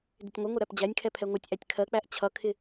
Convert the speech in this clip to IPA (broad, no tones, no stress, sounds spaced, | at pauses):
d ɪ tʲ ŋʷ ɪ ŋʷ ɪ ɾ æ p d͡ʑ æ nʲ kʰ ɛ pʰ ɛ ŋʷ ʌ tʲ ʔ æ tʲ kʰ ɜ k͡p æ ʔ t͡ɕʰ ʌ kʰ ɪ